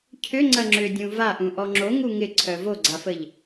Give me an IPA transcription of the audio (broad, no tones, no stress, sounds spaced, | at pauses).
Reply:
cʰ ʏ ŋ͡ǀ ɐ ŋ͡ǁ ʏ dʲ ũ v a ʔ ũ ʔ ɔ ŋ͡ǁ o ŋ u ŋ ɪ ǀʰ œ v o ɡ͡ǀ a f ə ʎ